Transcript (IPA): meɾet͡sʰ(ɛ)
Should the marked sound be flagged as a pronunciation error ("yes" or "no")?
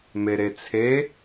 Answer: yes